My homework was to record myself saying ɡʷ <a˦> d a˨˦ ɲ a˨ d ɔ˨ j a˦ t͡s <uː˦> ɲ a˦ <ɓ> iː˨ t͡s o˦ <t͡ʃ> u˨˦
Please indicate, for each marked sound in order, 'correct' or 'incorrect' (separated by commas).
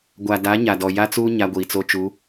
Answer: incorrect, correct, incorrect, correct